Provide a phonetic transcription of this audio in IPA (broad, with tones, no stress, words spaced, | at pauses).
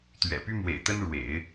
t̪ɥɛ̰˨˩py˥ mwḛ˨˩ɪ̯t̪ə˥nɻwḛ˨˩˦ɪ̯